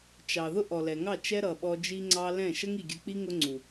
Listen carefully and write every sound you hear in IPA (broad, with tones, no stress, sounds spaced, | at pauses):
t͡ʃ ɑ˨ ð ʊ˦ ʔ ɔ˨ l ɛ˨ ŋ ɑ˦˨ t͡ʃ ɛ˦ ɾ ʌ˨ ɓ ɔ˧ d͡ʒ i˧ ŋ͡ǀ ɑ˧ l ɛ̃˦˨ ʃ ə˦ ŋ i˨ ɡʲ ə˧ k͡p i˦ ŋ ʊ˦ ŋ͡ǀ u˨